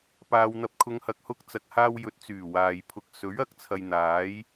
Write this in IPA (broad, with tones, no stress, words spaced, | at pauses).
paː˨wn̪ɐ˨p̚kʰʊ˨˧ŋhɐ˨k̚ hʊ˧k̚t͡sɐ˨k̚haː˧w jɵ˨t̚t͡syː˨˩ waː˨jpʰʊ˧k̚ sɵ˨˥ɥɐ˧k̚ t͡sʰɐ˧jn̪aː˨˥j